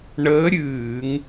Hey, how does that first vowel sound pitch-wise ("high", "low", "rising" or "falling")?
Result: rising